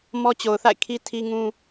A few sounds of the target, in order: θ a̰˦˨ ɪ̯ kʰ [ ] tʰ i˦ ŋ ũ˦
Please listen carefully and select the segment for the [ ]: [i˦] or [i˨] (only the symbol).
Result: i˦